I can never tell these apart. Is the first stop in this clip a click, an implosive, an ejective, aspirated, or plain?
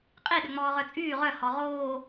ejective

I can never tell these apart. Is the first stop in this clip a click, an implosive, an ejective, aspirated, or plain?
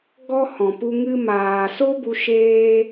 plain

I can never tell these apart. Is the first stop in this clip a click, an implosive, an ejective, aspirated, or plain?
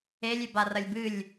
plain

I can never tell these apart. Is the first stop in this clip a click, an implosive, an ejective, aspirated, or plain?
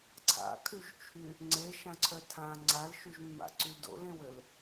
click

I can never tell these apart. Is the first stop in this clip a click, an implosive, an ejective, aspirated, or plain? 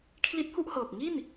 aspirated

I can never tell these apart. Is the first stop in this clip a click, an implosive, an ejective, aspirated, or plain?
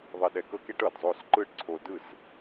implosive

